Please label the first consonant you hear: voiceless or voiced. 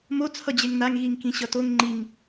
voiced